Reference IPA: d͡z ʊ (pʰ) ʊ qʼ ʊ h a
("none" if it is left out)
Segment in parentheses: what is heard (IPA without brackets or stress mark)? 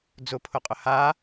pʰ